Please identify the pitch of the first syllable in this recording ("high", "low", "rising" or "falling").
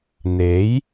rising